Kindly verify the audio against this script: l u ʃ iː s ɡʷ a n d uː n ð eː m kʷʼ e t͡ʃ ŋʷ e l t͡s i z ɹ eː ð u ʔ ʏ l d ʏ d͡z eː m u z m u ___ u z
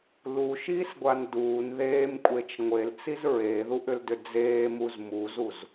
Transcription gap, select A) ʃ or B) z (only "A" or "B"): B